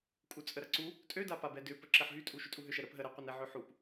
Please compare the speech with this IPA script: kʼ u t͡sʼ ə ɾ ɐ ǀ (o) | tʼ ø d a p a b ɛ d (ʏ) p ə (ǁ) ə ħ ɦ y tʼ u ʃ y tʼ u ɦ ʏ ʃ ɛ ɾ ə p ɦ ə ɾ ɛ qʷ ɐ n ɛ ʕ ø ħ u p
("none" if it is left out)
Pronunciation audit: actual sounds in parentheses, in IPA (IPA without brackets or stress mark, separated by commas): u, ʏ, ǁ